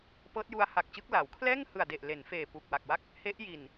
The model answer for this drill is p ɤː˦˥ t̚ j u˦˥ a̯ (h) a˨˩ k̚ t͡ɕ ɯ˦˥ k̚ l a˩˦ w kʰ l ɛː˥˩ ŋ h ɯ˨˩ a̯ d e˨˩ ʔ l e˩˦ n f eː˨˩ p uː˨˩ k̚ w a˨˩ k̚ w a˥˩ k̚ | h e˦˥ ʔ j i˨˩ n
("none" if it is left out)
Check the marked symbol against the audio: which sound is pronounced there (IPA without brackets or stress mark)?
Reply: h